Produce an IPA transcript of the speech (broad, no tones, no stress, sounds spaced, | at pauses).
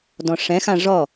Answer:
d ɔ̃ ʂ ɛ̃ x ã ʐ ɔ